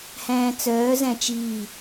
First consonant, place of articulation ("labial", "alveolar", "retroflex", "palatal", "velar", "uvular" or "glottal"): glottal